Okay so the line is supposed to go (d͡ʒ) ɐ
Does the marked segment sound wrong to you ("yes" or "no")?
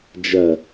no